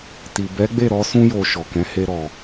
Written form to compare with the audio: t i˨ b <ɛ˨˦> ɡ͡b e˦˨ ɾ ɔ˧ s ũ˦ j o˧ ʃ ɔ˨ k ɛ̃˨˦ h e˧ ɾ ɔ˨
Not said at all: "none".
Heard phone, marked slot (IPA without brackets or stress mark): ɛ˨˦